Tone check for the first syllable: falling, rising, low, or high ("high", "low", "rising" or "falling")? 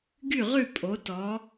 falling